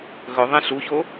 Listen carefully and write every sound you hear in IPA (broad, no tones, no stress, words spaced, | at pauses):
ɣɵðˤẽ ɬuço